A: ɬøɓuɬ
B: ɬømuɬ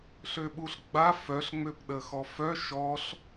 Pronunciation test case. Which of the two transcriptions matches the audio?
A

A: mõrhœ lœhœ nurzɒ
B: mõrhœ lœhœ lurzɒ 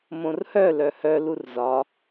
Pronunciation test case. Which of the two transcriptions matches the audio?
B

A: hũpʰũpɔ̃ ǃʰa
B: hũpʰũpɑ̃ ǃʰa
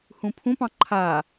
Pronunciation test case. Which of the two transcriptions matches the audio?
B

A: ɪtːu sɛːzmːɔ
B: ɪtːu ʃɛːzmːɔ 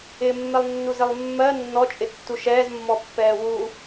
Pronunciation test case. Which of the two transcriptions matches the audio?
B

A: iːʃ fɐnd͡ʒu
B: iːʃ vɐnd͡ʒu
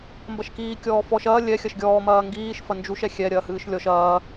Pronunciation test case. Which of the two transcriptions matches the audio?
A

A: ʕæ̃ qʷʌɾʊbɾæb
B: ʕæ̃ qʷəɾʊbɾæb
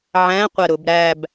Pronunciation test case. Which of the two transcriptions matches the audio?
B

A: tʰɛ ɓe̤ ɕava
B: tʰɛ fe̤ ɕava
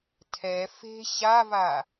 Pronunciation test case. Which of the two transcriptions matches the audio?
B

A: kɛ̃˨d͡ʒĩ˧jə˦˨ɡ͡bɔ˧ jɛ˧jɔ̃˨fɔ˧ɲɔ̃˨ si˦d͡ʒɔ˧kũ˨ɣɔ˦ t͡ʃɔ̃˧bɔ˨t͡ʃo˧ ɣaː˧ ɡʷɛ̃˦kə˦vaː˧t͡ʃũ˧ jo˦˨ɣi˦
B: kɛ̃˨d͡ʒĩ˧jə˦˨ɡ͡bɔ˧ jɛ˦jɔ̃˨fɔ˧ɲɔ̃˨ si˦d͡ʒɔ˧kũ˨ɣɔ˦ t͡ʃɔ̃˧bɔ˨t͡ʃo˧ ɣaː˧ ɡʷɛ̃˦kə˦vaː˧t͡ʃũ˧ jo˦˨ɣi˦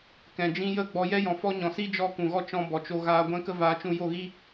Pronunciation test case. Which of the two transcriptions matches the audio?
A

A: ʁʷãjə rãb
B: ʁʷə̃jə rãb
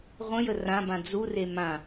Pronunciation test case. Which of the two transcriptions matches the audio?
B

